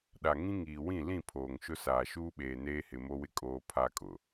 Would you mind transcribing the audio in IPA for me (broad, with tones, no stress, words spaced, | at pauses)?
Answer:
ɗa˨ŋĩ˦ŋiː˨ wĩ˦˨lĩ˦˨ pʰoː˨ŋʃʊ˦saː˨ ʃuː˦ɓeː˨ neː˦hɪ˨mo˦wɪ˦ kʼoː˦pʰa˦kʼʊ˨